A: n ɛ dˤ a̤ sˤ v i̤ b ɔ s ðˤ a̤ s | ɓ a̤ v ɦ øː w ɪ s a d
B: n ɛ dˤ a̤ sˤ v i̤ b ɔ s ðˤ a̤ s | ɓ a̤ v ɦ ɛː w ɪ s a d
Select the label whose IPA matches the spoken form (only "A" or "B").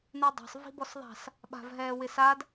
B